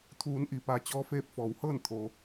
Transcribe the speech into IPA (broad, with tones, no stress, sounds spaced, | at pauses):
t̪ʰ uː˩˧ n ʔ i˩ p a˩˧ t͡ɕ ɔː˧˥ f eː˧ p̚ f ɔː˩˧ w h ɤː˥˨ n t̪ʰ o˩